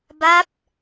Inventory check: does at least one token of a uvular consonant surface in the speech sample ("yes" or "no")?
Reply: no